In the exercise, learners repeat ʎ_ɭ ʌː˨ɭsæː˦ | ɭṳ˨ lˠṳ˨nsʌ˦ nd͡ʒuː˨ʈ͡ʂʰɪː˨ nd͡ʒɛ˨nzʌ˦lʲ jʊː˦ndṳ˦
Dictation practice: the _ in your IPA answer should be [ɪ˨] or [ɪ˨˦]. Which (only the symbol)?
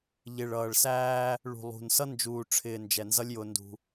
ɪ˨